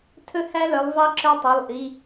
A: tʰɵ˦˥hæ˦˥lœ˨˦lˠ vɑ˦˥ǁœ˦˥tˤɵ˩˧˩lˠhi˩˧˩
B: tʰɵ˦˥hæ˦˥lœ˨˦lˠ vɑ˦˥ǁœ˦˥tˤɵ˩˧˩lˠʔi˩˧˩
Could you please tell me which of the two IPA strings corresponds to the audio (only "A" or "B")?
B